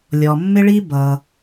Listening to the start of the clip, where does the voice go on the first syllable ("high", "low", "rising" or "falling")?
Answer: low